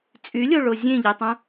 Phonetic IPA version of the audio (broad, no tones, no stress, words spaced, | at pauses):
t͡sʼylʲoɭo zʲẽʎetˤũ